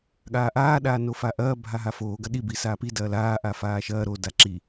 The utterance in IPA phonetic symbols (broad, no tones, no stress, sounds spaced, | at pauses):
ɠ aː ʔ aː ɗ aː n o f a ʔ ɐː bʱ a ɦ a f oː ɡ ɐ ɗ i b i s aː p i d ɐː l aː ʔ a f aː ʃ ɐː ɾ o d a ǁ i